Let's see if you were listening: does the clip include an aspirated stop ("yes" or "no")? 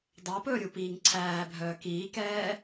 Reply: yes